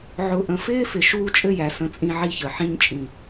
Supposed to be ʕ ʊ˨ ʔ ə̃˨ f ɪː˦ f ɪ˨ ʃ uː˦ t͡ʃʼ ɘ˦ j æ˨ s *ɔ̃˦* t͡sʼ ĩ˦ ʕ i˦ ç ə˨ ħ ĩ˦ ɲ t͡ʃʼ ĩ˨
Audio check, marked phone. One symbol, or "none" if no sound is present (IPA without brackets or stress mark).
ə̃˦